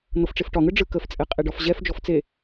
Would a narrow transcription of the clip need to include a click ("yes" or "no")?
no